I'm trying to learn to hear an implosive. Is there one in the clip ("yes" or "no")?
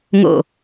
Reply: no